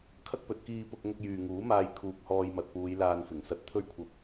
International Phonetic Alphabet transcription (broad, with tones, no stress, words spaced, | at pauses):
kʰɐ˥k̚pɵ˨t̚ kiː˧pʊ˧k̚ ŋʊ˧k̚jyː˨ŋuː˨˥maː˧j kʰuː˨k̚hɔː˧jmɐ˨t̚puː˨˧j laː˧nfɪ˨˩ŋsɐ˧t̚ t̪ʰɵ˥ɥkʷʰɐ˧p̚